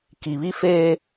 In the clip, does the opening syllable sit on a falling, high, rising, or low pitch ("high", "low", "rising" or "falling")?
low